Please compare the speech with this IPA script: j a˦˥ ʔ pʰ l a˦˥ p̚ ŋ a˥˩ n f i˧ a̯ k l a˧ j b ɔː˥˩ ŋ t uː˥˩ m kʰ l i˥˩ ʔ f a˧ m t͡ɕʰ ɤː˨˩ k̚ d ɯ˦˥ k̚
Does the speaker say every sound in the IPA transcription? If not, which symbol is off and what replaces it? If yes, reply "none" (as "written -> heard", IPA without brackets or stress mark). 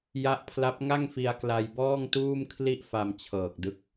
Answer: n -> ŋ